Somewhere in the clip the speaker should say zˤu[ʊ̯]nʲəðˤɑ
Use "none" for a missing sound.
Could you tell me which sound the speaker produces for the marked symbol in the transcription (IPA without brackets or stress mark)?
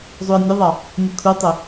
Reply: ə̯